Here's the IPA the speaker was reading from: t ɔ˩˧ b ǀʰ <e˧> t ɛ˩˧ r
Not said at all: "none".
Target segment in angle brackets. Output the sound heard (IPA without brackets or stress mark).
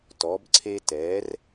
e˧